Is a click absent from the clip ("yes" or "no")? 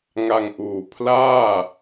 yes